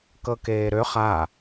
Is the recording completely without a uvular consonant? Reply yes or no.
no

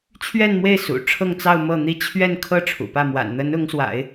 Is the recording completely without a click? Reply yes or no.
yes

